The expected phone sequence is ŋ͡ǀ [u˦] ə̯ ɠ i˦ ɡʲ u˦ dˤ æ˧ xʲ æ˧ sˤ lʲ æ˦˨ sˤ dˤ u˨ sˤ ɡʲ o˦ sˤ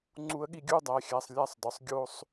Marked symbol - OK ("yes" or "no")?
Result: yes